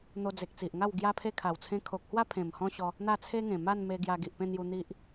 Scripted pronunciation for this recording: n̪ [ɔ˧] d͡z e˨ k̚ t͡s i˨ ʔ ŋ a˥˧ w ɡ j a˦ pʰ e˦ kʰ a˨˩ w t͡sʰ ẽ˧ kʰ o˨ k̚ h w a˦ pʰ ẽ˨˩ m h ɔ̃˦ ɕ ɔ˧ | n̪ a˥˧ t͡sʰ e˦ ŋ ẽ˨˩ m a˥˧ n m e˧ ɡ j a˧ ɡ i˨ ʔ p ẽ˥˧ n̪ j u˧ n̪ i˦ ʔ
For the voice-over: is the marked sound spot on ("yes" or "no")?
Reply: no